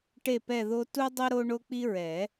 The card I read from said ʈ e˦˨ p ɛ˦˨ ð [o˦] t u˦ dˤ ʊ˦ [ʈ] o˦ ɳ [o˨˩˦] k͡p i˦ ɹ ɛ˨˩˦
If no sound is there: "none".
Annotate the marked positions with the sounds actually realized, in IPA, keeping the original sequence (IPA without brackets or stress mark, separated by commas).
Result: o˦, ɾ, o˦